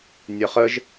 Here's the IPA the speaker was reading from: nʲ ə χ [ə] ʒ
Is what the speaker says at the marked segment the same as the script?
yes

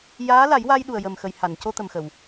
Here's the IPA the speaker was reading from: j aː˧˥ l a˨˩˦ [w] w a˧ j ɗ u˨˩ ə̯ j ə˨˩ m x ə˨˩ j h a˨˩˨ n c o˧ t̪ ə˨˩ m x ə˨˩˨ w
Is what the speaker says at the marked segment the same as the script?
no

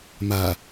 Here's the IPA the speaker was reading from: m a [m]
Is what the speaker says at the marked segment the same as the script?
no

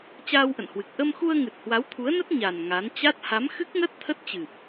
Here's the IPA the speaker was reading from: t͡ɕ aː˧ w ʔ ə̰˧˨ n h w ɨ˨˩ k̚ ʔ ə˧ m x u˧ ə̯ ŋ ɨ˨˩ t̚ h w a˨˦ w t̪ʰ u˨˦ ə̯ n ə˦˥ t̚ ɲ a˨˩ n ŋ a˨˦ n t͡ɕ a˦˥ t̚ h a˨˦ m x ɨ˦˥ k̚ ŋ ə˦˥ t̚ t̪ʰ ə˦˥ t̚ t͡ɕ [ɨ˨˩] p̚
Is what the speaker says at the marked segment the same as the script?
yes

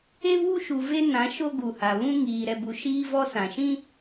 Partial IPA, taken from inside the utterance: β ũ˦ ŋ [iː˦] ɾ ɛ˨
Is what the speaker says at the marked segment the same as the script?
no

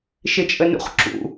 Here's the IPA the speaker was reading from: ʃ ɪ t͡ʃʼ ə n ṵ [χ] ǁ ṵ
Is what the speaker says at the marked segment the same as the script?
yes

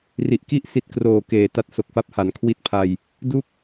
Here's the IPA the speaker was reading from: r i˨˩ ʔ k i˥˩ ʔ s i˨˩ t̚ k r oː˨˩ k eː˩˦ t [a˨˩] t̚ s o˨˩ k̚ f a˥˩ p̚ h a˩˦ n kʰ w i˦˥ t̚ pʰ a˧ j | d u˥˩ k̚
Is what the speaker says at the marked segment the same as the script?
no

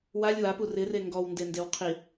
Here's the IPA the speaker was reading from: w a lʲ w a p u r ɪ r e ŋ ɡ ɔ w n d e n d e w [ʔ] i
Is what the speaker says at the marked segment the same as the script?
no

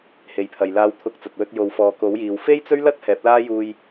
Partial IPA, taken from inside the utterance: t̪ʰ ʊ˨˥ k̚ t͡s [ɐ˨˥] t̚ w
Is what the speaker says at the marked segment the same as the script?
no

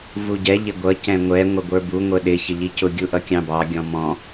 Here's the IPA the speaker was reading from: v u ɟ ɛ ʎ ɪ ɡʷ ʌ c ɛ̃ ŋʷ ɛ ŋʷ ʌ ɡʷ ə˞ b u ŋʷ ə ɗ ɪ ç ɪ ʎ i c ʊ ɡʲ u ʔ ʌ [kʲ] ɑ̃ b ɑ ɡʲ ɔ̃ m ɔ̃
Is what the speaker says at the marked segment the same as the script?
yes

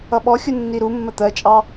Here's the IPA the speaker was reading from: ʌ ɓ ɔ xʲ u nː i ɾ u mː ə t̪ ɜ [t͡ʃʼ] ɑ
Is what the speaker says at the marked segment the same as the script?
yes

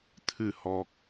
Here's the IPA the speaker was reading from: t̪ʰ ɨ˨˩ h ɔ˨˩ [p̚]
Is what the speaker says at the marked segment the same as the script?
no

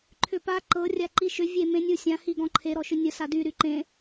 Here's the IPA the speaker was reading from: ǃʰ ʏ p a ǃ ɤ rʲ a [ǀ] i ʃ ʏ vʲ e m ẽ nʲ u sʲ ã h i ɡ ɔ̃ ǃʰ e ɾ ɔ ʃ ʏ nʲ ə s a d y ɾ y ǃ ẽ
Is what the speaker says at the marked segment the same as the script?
no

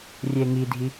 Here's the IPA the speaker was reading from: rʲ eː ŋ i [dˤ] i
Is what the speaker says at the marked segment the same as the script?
no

